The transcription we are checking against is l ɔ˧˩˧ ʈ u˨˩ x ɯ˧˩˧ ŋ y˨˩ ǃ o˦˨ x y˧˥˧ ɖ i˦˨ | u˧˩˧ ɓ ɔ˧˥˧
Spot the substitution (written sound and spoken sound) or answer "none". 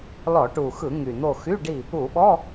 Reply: ǃ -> n̪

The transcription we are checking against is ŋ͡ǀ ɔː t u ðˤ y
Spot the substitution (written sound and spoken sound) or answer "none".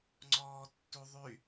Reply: t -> tː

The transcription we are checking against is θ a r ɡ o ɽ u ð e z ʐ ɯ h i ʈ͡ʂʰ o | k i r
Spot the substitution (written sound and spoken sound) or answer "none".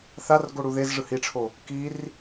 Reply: none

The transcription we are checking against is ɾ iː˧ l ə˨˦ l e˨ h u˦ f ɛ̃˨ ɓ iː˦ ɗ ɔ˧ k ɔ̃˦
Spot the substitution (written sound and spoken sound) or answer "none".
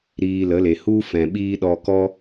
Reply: ɔ̃˦ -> ɔ˦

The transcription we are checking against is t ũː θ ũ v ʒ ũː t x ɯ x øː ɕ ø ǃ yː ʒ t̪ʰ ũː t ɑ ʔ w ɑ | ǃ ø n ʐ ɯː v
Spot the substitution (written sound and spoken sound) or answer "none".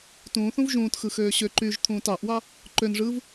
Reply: none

